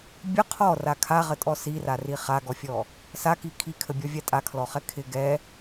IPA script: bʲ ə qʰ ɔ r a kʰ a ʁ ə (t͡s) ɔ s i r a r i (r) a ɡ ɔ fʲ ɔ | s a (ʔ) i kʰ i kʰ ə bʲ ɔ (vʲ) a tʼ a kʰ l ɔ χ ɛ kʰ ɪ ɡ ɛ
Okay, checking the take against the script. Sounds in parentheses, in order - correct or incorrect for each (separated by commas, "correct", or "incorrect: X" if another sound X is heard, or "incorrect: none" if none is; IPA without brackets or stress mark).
incorrect: tʼ, incorrect: χ, incorrect: k, correct